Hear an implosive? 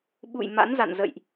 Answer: yes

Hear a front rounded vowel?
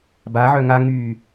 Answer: yes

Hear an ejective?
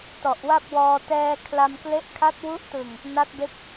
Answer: no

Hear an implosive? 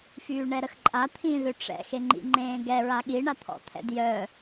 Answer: yes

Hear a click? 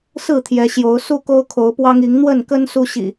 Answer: no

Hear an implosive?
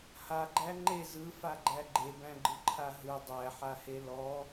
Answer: no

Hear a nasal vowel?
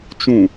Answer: yes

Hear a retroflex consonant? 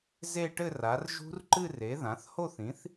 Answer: yes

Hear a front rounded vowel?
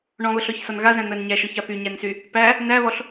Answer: yes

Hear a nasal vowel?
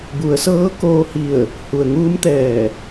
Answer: no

